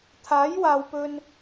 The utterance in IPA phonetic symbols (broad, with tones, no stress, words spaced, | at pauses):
t̪ʰaː˨˥jwaː˨wpɵ˧n